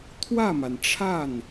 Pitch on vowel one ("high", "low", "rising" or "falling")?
falling